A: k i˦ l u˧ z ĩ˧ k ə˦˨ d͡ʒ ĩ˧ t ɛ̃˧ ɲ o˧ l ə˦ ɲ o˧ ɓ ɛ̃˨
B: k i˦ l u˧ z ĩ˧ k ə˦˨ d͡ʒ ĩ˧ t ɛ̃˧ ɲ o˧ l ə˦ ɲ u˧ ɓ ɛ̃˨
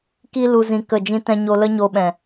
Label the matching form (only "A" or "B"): A